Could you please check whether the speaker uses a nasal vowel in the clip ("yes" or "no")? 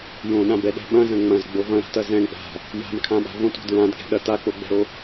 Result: yes